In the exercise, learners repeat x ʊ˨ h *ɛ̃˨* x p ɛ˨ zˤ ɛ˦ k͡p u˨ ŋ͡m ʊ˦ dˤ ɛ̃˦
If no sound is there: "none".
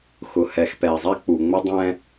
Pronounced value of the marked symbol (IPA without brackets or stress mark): ɛ˨